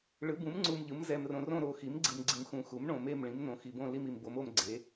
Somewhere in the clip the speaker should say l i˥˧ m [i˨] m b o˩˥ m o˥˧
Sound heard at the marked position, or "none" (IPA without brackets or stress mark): i˨